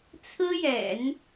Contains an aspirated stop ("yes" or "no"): yes